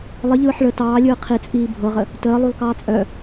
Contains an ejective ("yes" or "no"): yes